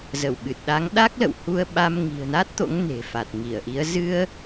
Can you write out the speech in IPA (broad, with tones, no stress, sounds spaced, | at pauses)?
z ə˧˩ w ɓ ɨ˨˩ t̚ ɗ a˨˦ ŋ ɗ a˦˥ k̚ l ə̰˧˨ w h u˧ ə̯ ɓ a˧ m ŋ i̤˨˩ ə̯ n a˦˥ t̚ t̪ o̰˧˥ ŋ n e̤˨˩ f a˨˩ t̚ ŋ i˧˩ ə̯ ʔ i˨˦ ə̯ z ɨ˧ ə̯